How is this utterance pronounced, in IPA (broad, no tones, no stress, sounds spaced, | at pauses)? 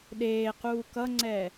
ɗ eː q uː k ʌ ŋ͡ǀ ɛ